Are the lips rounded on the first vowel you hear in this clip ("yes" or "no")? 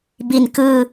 no